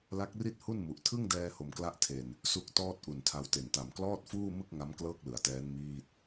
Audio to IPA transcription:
l a˦˥ k̚ r i˥˩ t̚ h u˥˩ n m u˨˩ ʔ tʰ ɯ˥˩ ŋ d ɛː˧ h o˧ m k l a˥˩ ʔ tʰ e˧ n | s u˦˥ k̚ t ɔː˥˩ t̚ ʔ u˨˩ n tʰ a˧ w t e˨˩ n t a˨˩ m k l ɔː˥˩ t̚ f uː˥˩ m ɯ˥˩ k̚ ŋ a˦˥ m k l ɤː˥˩ k̚ l ɯ˩˦ a̯ t ɛː˦˥ n m iː˥˩ t̚

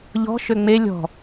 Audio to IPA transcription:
ʎ ɔ̤ ʃ ø ŋ͡m e lʲ ɔ̤

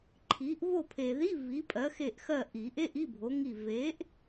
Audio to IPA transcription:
ǃʰ i˨˥ ʔ v o˦˨ pʰ e˨ ð i˧˥˧ v i˨˥ pʼ ɜ˨˥ x e˦˨ ʔ x ɜ˦˨ ʔ i˨˩˦ ʔ e˧˥˧ ʔ i˧˥˧ bʱ o˨˥ ŋ i˦˨ v e˨˥ ʔ

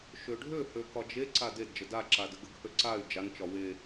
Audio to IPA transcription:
ʃ ø ɖʱ ø h ø k ɒ d͡ʒ e ǀ a d e d d͡ʒ ə d a ǁ a d ə ɡ ə ɡ h ø ǀ a y̯ d͡ʒ a n t͡ʃ ɒ w e

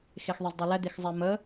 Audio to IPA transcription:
x e x ðˤ e z dˤ e l ɛ d̪ e x zˤ ɛ m ə

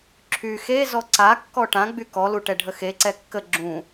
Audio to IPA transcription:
ǁʰ y x e z ɔ ǀ a kː ɔ ʈ ã ɡ͡b y k ɔ l u ʈ ɛ ɖʱ ə x e ǀ ɛ kː ə ɡ͡ǁ ũ

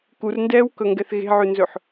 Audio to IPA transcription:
k u r n d ɛː w k ɵ ŋ ɡ ɛ θ ɣ e̤ ʕ ʉ n z ɵ ħ

